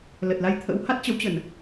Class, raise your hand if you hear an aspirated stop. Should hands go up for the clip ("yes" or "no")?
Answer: yes